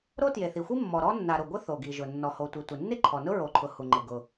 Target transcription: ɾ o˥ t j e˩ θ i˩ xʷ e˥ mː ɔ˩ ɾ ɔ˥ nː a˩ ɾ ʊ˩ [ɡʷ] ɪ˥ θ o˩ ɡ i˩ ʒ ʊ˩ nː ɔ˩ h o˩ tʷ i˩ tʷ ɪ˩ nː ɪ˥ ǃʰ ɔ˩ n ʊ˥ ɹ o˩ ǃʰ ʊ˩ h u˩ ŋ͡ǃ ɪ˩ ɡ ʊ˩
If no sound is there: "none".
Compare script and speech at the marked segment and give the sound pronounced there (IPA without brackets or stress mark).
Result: ɡʷ